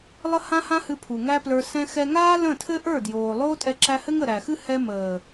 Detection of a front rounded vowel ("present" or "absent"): absent